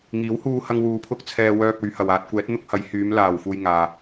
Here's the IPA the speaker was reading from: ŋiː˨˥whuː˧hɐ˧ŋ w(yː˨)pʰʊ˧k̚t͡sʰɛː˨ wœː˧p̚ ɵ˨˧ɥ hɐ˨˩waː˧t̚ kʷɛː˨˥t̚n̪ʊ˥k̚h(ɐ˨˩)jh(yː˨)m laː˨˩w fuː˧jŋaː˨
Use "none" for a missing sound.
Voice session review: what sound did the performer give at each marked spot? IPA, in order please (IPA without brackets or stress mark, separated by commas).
uː˨, ɐ˨˥, yː˨˧